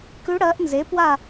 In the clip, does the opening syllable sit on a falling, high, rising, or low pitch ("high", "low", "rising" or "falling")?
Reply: rising